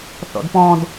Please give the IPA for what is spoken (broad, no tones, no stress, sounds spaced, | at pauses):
θ ɔ̰ d p ɔ̃ d